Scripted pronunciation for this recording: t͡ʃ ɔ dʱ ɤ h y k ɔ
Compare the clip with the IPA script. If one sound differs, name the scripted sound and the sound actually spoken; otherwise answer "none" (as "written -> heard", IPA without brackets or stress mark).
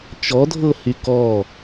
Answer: none